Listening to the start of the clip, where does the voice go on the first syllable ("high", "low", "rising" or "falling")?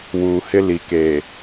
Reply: low